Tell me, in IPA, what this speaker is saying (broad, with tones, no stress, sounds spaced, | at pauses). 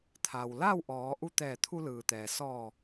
t̪ʰ a˩ w l a˥˨ w ʔ ɔː˩˧ ʔ u˧ t̪ ɛː˧˩ t̪ʰ u˧ l ɯː˩ t̪ ɛː˩ s ɔː˧˩